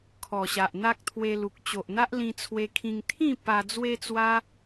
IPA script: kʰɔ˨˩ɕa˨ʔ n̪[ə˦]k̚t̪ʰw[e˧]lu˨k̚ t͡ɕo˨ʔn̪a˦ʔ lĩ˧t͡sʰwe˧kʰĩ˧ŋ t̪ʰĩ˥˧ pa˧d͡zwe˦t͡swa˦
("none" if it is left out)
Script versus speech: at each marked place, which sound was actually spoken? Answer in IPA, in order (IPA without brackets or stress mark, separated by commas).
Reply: a˦, e˧